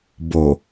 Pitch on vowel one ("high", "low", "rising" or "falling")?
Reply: low